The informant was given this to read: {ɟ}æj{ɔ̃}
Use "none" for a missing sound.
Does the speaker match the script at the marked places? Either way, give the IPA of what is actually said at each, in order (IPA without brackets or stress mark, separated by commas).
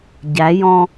ɟ, ɔ̃